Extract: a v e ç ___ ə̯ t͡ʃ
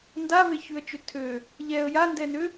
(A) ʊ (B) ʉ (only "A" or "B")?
B